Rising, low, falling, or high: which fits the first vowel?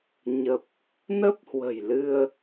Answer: low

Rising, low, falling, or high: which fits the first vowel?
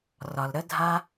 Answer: low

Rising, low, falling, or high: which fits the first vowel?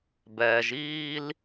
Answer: low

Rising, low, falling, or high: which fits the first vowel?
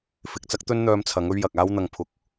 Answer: low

